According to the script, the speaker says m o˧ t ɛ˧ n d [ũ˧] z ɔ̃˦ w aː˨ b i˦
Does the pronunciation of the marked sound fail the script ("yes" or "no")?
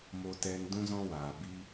yes